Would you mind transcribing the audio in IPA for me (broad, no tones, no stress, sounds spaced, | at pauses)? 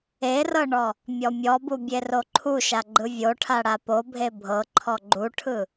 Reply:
e r ɤ ɳ ɔ | mʲ ɔ mʲ ɔ b u bʲ e r o ǃʰ u ʃ a ɡ͡ǃ ɯ vʲ o ʈʰ a ɽ a p o bʱ e bʱ ɤ ǃʰ ɔ ɡ͡ǃ u ʈʰ ɯ